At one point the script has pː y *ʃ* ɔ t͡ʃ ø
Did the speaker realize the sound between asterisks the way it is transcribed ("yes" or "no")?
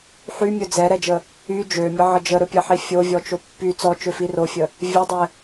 no